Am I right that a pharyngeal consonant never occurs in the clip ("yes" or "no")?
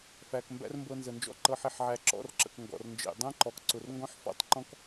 no